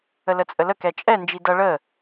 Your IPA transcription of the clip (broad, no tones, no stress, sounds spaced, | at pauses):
ə l ə t͡sʼ ə l ə k ɛ t͡ʃʼ ɛ n d͡ʒ i d ʌ ɭ ə